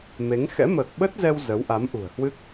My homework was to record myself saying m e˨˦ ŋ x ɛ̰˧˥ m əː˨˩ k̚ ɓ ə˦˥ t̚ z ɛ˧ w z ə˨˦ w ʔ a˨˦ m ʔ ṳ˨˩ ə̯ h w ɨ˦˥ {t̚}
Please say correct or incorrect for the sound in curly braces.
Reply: incorrect